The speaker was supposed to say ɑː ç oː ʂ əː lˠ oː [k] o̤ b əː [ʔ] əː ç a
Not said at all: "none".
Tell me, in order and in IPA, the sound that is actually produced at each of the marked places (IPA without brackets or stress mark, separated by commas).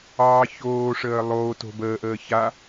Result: t, ʔ